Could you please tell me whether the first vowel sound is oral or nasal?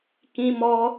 nasal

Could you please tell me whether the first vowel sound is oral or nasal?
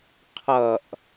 oral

